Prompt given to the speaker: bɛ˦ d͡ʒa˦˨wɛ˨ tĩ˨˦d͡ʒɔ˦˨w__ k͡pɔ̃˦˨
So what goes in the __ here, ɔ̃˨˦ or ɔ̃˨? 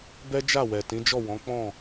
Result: ɔ̃˨˦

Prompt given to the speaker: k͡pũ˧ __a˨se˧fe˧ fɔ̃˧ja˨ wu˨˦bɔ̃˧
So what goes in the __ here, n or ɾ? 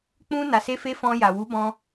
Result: n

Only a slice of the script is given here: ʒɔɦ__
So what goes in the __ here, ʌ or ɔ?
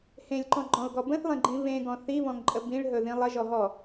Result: ɔ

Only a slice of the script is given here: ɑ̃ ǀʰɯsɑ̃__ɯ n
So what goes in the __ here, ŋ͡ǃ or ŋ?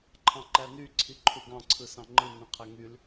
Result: ŋ͡ǃ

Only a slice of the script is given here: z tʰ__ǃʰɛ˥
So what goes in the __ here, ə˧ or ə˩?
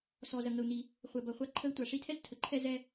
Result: ə˩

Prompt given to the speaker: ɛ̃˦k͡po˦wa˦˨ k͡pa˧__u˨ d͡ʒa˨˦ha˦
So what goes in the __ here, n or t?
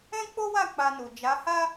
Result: n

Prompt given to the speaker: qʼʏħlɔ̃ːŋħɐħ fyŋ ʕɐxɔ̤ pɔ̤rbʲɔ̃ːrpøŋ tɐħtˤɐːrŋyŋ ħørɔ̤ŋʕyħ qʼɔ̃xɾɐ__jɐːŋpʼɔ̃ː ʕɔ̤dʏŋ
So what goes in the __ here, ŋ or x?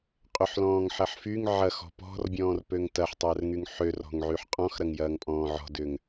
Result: ŋ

